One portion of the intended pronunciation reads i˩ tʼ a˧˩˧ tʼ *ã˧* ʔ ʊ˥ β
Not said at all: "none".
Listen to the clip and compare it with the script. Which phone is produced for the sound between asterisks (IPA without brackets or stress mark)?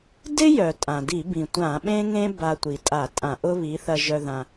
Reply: ã˧˩˧